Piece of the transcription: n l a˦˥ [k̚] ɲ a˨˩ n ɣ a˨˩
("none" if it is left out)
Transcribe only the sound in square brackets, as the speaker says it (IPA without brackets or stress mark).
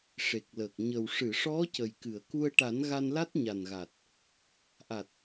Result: t̚